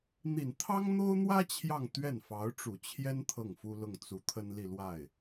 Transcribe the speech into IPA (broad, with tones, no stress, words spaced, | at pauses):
n̪i˨˩nt̪ʰɑ˥ŋn̪o˥ʊ̯n̪wä˥ t͡ɕʰjɑ˥˧ŋt̪ɥɛ˥˩n fɑ˧˥ʊ̯ʈ͡ʂu˨˩t͡ɕʰjɛ˥n t̪ʰɤ˥˩ŋfu˥lʊ˥˩ŋ t͡su˧˥ t̪ʰə˥nli˥˧lwa˥˩ɪ̯